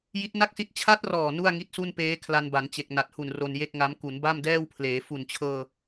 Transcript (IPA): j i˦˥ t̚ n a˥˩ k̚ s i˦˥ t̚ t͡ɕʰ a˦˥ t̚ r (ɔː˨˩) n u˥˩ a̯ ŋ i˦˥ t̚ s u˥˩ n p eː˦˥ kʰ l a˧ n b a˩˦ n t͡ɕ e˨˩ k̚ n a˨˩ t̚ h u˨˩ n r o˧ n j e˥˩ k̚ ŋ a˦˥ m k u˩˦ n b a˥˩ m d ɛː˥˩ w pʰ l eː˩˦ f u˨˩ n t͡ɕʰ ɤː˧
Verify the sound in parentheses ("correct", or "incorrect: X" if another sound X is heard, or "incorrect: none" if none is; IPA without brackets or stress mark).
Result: correct